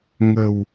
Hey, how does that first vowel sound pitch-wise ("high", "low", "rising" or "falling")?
low